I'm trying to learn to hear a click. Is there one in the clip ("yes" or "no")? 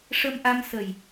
no